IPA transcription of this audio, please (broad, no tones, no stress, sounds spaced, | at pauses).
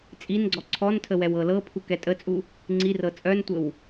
t͡sʼ i n ɡ͡ǀ ɔ ǀʰ ɔ n tʰ ə w ɛ w ɤ l ɤ pʰ u k ɛ tʼ ə t͡sʼ u | ŋ͡ǀ i r ɤ t͡sʼ œ n tʷ ə w